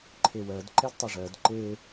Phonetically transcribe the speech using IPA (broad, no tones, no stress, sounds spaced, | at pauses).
ǃʰ e w ɜ d ǃ ɛ d tˤ ɛ ʐ ɜ d ǃ e